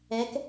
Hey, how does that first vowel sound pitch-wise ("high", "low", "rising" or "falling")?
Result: rising